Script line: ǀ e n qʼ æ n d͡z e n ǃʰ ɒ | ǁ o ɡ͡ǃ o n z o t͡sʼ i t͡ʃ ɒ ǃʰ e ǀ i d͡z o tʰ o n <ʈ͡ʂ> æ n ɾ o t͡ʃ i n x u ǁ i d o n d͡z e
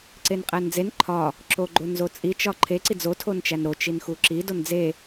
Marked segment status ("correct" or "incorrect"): incorrect